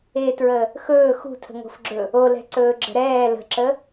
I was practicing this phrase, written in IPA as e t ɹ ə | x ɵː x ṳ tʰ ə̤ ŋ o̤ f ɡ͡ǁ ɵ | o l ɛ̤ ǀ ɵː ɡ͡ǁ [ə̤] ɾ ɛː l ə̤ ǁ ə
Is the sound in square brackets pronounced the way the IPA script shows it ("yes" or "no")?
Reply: yes